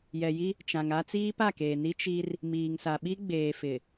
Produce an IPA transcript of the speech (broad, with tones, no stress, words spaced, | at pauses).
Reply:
jɛ˨ji˦ | t͡ʃã˨ŋa˦ t͡siː˦pa˦˨keː˨ni˦ t͡ʃi˦r | miː˨ŋsa˨ ɓi˦ɡ͡beː˨fɪ˨